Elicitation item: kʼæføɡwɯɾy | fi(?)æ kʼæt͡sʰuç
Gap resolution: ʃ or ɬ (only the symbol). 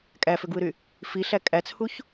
ɬ